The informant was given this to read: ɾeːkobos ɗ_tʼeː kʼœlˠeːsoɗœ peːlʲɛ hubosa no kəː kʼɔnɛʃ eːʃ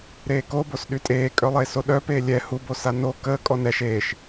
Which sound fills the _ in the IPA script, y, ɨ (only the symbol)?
y